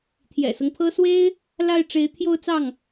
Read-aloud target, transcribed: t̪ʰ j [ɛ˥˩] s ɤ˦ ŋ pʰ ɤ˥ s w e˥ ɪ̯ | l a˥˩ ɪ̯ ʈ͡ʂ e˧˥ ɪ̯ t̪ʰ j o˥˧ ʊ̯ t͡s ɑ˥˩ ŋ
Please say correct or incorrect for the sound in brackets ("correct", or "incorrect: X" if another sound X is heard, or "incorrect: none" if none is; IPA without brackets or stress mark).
incorrect: ɛ̰˨˩